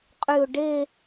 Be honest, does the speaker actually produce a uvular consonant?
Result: yes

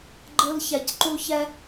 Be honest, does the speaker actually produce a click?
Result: yes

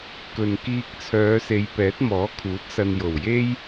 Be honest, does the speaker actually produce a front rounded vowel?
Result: yes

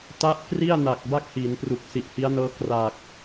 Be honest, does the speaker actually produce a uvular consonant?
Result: no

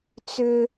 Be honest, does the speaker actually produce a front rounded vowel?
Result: yes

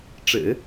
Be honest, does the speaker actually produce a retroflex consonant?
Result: yes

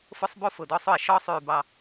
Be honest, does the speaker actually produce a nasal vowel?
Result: no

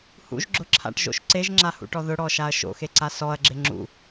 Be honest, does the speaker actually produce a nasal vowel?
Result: no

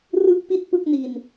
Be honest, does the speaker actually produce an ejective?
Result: no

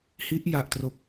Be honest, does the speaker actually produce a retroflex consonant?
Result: no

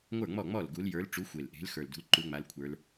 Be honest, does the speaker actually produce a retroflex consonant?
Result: yes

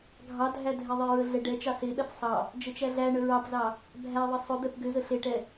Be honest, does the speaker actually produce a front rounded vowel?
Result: yes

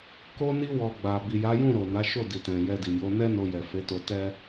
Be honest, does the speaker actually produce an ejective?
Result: no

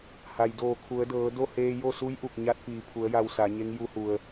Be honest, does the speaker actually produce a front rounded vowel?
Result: no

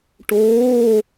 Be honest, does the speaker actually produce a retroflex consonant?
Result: yes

